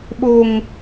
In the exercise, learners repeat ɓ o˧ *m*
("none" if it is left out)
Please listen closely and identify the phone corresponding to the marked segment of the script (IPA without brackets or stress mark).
ŋ